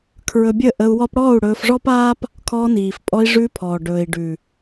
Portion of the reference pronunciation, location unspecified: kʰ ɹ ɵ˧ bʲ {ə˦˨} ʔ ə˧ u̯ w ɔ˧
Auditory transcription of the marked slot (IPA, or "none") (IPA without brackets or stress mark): ə˦˨